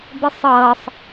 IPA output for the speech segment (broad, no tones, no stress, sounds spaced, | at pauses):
b e sˤ ʌː sˤ